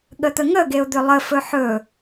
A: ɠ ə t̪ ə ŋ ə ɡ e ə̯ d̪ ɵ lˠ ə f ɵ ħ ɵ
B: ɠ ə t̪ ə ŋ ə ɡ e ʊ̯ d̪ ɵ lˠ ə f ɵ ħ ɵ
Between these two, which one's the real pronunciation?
B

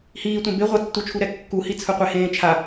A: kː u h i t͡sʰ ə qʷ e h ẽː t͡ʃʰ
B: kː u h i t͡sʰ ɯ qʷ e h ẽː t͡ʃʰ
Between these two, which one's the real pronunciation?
B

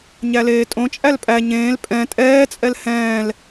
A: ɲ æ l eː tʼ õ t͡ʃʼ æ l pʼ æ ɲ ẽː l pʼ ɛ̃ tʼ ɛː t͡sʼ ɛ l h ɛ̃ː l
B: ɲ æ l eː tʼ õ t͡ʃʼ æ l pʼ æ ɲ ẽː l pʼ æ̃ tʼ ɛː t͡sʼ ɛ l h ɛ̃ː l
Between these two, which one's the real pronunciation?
A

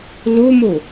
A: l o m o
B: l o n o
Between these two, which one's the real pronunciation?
A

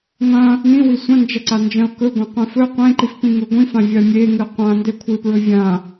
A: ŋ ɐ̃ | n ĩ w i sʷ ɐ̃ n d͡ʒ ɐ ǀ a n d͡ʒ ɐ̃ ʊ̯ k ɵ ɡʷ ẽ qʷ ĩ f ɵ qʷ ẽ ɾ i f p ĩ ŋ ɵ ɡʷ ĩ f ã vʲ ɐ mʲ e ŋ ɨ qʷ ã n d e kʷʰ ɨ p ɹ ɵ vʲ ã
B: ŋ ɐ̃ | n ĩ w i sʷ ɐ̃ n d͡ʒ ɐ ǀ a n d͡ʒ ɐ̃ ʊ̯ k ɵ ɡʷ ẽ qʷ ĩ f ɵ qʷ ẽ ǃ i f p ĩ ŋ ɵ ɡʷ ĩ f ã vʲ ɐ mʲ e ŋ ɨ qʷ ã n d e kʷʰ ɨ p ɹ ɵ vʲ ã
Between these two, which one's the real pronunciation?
B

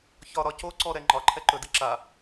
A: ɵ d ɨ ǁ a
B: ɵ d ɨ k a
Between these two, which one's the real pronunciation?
A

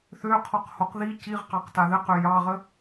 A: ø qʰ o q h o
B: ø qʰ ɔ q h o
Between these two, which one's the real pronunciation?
B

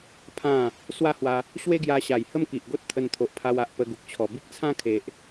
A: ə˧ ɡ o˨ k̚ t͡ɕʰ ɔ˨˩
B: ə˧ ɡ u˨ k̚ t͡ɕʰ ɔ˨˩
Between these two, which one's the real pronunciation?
B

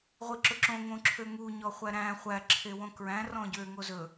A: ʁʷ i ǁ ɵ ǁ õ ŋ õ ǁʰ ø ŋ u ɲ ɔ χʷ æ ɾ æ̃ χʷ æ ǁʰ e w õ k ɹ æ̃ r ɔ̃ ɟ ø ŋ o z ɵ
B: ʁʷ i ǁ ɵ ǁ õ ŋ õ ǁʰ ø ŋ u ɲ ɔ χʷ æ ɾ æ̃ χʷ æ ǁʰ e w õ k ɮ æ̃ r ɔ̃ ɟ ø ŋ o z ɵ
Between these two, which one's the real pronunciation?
A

